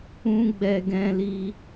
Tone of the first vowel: high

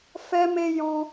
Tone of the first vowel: high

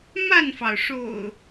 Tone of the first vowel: falling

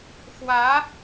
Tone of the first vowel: rising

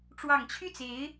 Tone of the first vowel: low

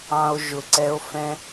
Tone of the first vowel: low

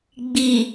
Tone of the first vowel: low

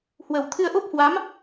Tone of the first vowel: low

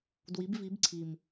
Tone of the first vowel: rising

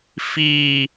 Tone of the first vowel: high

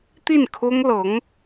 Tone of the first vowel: falling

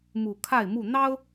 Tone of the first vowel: low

